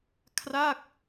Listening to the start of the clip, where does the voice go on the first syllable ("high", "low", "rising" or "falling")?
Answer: falling